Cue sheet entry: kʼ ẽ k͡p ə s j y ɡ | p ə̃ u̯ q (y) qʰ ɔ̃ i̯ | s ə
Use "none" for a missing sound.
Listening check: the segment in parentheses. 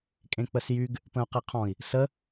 e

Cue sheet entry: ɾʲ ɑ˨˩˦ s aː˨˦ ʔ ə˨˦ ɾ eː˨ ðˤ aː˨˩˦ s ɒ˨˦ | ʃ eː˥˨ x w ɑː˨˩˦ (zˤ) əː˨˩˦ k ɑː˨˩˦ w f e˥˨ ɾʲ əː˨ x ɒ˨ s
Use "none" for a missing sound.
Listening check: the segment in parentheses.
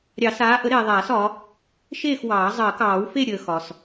zˤ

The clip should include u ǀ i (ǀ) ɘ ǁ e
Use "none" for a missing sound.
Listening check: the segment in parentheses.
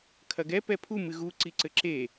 ǀ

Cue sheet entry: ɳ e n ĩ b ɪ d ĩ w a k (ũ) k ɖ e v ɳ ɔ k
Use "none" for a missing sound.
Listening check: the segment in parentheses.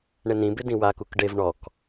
u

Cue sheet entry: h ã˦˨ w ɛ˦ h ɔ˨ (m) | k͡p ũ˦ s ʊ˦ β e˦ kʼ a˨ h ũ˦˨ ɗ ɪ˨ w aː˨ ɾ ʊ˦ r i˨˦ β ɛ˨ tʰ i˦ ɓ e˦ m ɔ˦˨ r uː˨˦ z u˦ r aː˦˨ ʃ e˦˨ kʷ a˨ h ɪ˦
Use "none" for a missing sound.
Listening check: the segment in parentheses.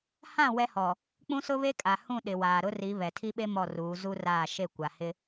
none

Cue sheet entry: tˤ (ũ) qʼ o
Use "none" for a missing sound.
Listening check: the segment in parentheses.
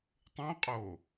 ũ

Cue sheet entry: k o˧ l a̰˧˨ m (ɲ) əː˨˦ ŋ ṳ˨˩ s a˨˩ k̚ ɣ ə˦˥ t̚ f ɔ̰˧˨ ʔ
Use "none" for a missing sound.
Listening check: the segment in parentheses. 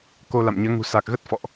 ɲ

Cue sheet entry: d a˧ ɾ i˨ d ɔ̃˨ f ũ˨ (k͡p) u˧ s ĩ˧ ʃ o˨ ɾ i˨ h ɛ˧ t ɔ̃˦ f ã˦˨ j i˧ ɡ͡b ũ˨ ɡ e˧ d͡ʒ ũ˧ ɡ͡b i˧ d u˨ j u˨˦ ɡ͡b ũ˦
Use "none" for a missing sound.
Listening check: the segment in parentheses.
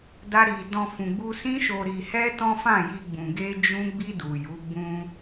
ɡ͡b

